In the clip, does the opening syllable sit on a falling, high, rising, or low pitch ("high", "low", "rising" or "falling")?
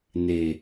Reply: low